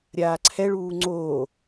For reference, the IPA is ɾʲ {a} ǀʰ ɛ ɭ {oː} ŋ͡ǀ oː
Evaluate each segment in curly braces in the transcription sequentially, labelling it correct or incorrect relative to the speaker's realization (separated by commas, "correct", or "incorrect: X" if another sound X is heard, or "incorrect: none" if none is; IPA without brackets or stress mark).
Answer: incorrect: aː, incorrect: uː